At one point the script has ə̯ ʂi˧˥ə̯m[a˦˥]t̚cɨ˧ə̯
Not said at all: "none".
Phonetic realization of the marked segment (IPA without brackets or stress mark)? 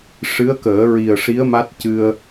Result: a˦˥